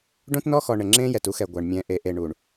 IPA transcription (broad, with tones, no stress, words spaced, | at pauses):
ɖõ˦tnɔ˦xɔ˨ ɳɘ˨ŋ͡ǁẽː˦jɛ˨tu˦ xɛ˨ɡʷa˨ɳmʲɛ̃˨ʔe˨ ʔe˨ɳu˨ɳ